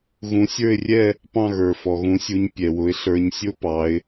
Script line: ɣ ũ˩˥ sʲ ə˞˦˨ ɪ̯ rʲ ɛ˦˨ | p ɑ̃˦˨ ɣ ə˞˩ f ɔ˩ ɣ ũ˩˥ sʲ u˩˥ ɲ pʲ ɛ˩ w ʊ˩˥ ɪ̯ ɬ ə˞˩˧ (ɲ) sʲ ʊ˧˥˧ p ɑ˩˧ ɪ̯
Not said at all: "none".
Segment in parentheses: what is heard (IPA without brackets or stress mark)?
ɲ